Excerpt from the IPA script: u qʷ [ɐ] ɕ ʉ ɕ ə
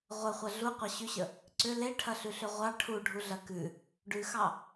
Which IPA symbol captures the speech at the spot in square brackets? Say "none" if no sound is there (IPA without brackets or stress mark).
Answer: ɐ